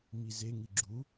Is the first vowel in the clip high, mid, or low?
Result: high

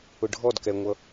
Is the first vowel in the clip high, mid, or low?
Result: high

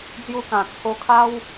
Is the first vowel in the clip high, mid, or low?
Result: high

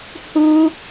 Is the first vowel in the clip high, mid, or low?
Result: high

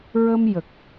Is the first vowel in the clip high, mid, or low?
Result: mid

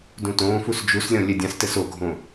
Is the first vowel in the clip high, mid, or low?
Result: high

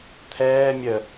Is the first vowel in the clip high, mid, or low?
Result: mid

